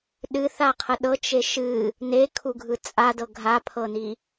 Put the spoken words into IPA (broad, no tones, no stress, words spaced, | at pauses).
ɗɨθaqʰə ɗɤt͡ʃe ʃɨ | nekʰuɡʱɯ t͡sʼadɤ ɡʱapʰɤni